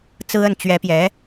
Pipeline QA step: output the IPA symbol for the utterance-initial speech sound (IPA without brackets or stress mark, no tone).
t͡s